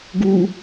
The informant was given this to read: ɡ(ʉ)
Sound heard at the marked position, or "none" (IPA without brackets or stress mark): u